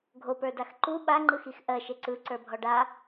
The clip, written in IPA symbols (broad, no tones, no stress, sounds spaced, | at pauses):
ɡʱ o p ə˞ d a x ǃ u ɓ a ŋ͡ǃ ɯ x i x ʔ ɜ ʃ e ǀ ɯ ǀ ə˞ bʱ ɔ ɖ a